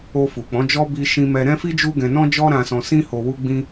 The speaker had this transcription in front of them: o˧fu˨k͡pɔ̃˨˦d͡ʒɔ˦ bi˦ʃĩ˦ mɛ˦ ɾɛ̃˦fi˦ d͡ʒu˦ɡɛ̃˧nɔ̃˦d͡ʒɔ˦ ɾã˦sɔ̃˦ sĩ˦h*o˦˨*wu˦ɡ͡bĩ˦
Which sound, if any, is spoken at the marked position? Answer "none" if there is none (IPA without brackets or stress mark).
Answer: o˧